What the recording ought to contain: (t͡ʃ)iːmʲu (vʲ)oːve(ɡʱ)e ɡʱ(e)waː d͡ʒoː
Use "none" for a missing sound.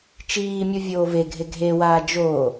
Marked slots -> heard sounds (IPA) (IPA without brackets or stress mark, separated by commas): t͡ʃ, vʲ, ɡʱ, e